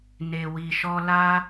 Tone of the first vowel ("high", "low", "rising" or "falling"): low